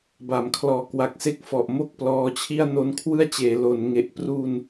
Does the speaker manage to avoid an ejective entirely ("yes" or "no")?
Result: yes